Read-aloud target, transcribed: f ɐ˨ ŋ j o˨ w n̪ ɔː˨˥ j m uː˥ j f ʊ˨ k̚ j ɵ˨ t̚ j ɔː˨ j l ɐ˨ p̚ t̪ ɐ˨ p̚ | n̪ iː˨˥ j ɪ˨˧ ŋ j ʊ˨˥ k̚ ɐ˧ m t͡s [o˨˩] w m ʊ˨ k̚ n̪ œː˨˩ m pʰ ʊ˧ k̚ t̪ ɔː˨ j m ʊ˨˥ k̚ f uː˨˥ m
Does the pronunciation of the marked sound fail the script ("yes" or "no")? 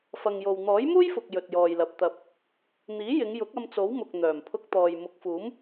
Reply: yes